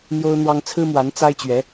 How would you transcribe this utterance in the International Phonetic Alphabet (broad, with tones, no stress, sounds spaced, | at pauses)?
n̪ j o˥ ʊ̯ n̪ w ɑ˥ ŋ t͡sʰ ɹ̩˥ m w a˧˥ n t͡s a˥ ɪ̯ t͡ɕ ɥ ɛ˧˥